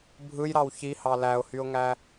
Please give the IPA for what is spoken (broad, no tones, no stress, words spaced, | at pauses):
bʱɯjɾɑw çihɑ læʊ̯hyʊ̯ŋæ